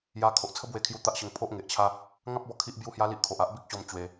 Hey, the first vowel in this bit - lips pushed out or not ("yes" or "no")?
no